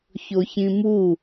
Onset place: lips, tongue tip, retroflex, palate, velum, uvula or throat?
palate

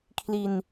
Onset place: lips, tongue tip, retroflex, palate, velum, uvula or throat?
velum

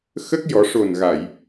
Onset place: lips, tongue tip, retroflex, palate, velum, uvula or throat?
velum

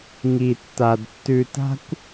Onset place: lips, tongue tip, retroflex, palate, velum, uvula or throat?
velum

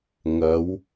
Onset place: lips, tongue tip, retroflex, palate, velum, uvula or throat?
velum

